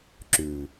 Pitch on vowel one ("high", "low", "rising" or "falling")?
low